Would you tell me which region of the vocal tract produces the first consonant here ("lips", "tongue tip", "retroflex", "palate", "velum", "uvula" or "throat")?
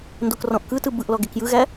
tongue tip